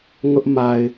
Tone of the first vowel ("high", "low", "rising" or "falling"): high